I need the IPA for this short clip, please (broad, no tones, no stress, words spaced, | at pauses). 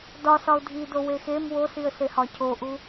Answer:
dɒsɒʊ̯ dʱido wexem wosiə̯sehɒ cʰoʔu